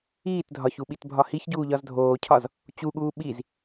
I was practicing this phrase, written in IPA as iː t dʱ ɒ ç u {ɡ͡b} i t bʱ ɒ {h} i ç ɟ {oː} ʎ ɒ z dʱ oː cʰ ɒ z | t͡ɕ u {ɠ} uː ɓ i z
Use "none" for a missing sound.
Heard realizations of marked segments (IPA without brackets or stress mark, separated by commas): ɓ, h, uː, ɠ